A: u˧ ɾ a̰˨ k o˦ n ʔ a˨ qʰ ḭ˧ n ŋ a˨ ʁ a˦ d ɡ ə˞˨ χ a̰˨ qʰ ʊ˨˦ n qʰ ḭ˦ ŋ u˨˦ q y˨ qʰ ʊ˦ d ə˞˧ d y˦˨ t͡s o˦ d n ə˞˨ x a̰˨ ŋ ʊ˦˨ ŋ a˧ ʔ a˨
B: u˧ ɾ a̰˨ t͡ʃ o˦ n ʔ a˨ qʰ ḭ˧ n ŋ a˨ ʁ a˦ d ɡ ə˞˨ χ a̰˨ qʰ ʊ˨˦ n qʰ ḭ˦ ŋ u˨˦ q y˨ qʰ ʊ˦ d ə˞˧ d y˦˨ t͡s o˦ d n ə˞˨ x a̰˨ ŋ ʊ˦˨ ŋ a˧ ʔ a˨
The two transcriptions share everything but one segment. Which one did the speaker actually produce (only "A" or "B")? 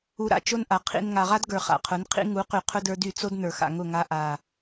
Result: B